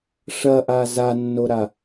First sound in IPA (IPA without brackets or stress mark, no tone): ʂ